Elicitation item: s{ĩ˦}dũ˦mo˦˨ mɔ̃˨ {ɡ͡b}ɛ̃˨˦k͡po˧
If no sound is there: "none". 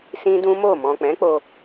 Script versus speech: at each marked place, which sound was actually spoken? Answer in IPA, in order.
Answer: ĩ˦, k͡p

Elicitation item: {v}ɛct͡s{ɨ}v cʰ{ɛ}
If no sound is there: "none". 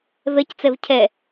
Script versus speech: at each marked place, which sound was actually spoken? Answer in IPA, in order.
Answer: v, ɛ, ɛ

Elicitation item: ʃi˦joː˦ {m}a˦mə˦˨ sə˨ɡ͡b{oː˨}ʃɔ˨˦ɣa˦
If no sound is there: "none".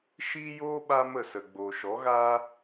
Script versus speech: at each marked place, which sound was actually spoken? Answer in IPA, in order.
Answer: ɓ, oː˨

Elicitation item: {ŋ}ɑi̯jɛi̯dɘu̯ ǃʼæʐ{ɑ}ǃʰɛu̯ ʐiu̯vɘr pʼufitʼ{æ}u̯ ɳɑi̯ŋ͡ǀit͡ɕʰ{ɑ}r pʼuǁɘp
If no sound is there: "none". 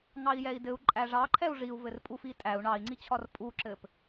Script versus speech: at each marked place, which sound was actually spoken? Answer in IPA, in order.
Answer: ŋ, ɑ, æ, ɒ

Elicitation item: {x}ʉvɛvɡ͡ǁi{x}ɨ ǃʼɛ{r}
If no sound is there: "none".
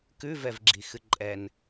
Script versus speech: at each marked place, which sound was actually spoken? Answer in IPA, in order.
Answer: k, x, n

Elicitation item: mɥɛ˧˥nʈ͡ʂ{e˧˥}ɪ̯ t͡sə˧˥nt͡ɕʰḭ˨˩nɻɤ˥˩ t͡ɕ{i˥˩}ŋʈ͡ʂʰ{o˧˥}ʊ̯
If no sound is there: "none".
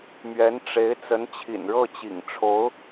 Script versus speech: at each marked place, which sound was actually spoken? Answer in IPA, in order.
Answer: e˧˥, ḭ˨˩, o˧˥

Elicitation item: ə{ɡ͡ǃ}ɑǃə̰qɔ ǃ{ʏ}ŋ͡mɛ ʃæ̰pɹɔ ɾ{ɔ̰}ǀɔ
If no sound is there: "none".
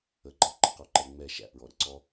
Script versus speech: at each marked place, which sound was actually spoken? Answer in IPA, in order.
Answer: ɡ͡ǃ, ɛ, ə̰

